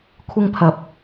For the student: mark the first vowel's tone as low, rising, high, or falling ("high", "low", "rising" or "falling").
high